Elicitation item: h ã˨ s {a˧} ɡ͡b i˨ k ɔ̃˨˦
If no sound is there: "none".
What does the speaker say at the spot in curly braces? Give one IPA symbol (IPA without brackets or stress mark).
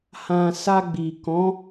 a˧